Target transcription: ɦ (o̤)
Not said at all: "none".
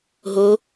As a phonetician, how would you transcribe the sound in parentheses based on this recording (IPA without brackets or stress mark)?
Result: o